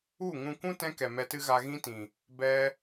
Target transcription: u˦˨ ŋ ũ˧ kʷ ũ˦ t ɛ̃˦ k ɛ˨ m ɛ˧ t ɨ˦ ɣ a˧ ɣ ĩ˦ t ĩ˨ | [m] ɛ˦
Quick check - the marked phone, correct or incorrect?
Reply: incorrect